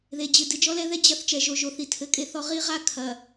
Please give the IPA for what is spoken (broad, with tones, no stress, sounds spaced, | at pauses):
ð e˨ d͡ʑ ɨ˨ d ɨ˨ d͡ʒ ɔ˦ l ɛ˦ ð ɛ˦ d͡ʑ ɐ˦ θ t͡ʃ ɛ˨ ʒ o˨ ʒ o˨ θ i˨ tʰ ɘ˨ kʼ e˦ θ ɔ˦ ʁ i˦ ʁ a˦ kʰ ɐ˨